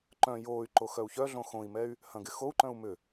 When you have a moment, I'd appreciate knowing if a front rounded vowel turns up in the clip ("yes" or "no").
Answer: yes